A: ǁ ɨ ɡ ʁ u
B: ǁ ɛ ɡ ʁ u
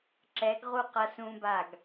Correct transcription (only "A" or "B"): B